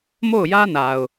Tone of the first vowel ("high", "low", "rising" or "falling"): falling